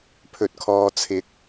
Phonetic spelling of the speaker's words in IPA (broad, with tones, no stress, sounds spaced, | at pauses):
pʰ ɵ˨ t̚ kʰ ɔː˨ t͡sʰ ɪ˨˥ k̚